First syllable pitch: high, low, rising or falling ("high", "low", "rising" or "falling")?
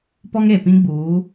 high